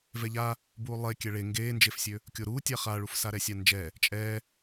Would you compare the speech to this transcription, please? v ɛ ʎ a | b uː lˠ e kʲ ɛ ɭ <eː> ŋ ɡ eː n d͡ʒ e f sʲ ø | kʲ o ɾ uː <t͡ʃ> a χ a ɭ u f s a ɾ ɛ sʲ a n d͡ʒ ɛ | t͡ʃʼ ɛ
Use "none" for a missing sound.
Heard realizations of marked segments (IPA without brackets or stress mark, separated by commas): e, tʲ